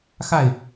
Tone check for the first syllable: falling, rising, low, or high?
falling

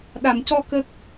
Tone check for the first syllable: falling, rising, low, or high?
low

